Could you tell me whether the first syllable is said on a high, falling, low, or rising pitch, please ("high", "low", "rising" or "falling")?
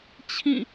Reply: falling